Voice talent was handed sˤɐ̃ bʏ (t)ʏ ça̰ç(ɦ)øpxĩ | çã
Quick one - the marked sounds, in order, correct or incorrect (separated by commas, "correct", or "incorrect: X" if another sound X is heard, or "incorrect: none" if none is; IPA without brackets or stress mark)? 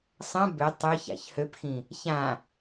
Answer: incorrect: tˤ, incorrect: h